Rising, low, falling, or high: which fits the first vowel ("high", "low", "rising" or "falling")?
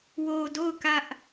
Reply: low